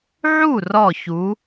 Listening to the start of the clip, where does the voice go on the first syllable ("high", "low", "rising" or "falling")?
falling